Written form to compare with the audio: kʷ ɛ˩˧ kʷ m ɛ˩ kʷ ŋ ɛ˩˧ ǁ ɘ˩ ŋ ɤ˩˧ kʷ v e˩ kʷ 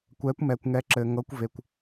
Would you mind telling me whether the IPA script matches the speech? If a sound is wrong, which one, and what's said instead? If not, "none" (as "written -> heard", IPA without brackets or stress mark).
none